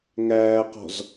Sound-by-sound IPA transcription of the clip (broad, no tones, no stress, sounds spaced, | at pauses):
ŋ æː q ɔ̤ z